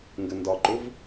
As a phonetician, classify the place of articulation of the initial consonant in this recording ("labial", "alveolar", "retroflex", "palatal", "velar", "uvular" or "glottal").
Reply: velar